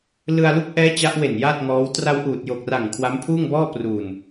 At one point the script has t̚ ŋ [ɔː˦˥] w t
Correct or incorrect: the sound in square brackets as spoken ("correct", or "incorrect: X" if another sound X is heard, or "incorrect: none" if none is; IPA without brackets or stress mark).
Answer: correct